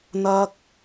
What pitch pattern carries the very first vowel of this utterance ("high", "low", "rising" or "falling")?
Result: high